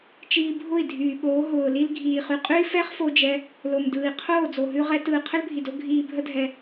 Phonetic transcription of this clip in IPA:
t͡ʃ iː˧ bʱ ʊ˦˨ i̯ dʱ yː˨ ɓ oː˨˦ ɦ ʊː˨ l i˧ l ɡʱ iː˨ χ ʉ˨ qʼ ʉ˦ i̯ f ɛ˦ χ f o˦ d͡ʒ ɛ˦ | l o˨ m d ɯː˨ i̯ qʰ oː˦˨ d͡z o˨ ɦ ʉ˧ ʁ ɛ˦ t ɯː˨ qʰ ə˦ l bʱ i˨ d o˦ ɡʱ iː˧ bʱ ə˦ dʱ ɛ˧

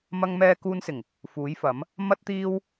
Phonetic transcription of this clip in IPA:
m ɐ˧ ŋ m ɛː˧ k uː˧ n s ɪ˨˩ ŋ | f uː˨˥ j f ɐ˨˥ m | m ɐ˥ t̚ t̪ iː˥ w

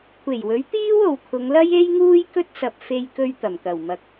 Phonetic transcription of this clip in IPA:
kʷʰ e˨˩ j w ɵ˨˥ ɥ t̪ iː˥ w o˨ w kʰ ʊ˨˧ ŋ l ɐ˥ j e˥ j ŋ uː˥ j k ɵ˥ t̚ s ɐ˨ p̚ f e˧ j k ɵ˧ ɥ t̪ ɐ˨˩ m k ɐ˨˩ w m ɐ˨ k̚

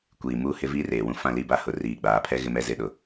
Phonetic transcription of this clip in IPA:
kʷ iː˨ m uː˦ h ɪ˦ v iː˦ r eː˨ w ũ˦ f ã˦˨ l i˦˨ b a˦ h ʊ˨ r iː˨ ɡ͡b aː˨ pʰ ɛ˦ ɣ ɪ˦ m ɛ˦ z ɪ˦ ɗ ʊ˨

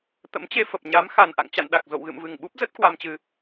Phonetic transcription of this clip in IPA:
t̪ ə̰˧˥ m t͡ɕ e˧ f ə˨˩ p̚ ɲ a˨˦ m x a˨˩ n ʔ a̰˧˨ ŋ t͡ɕ a̰˧˨ n ɗ a˨˩ k̚ z o̰˧˨ w ɣ ɨ̰˧˨ m v ɨ˨˩ ŋ ɓ u˦˥ p̚ z ə˦˥ t̚ k w a˧ m t͡ɕ ɨ˧

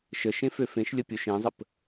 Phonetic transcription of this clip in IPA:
ʃ ə ʃ ẽ f ø f ẽ ʃ lʲ ə pʲ o ʃ ẽ zˤ ə p

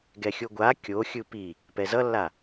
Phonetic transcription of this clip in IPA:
ɡ ɛ xʲ o ɡʷ a kʲ o xʲ ɯ p i | p ɛ z ʌ lː a

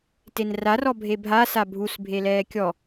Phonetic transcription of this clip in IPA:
t e n r a r ɔ bʱ e bʱ a s a bʱ u s bʱ e l ɛː kʲ ɔ

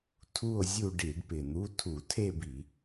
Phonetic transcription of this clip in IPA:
tʰ u˥˧ o̯ zʲ u˥˧ ɖ i˧˩˧ ɖ p ɪ˨˩ n̪ u˧˥˧ tʰ u˧˩˧ tʰ e˥˧ b i˧˩˧

